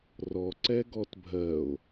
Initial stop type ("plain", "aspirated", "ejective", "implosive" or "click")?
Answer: click